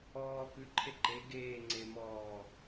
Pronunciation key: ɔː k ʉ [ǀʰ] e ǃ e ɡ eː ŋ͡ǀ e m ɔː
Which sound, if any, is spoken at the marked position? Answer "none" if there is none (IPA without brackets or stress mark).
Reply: ǃʰ